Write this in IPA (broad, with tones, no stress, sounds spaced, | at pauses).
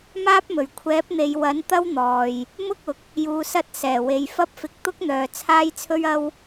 m aː˥ p̚ m ɵ˨˩ ɥ kʷʰ ɛː˨˥ p̚ n̪ e˨ j w ɐ˨˥ n t̪ ɐ˥ w n̪ ɔː˨ j | m ʊ˥ k̚ ʊ˨˥ k̚ | j uː˨ s ɐ˧ t̚ s ɛː˨˩ w e˨ j f ɐ˥ p̚ f ɪ˧ k̚ t̪ ʊ˥ k̚ n̪ œː˨ t͡sʰ aː˥ j t͡sʰ ɵ˥ ɥ ɐ˥ w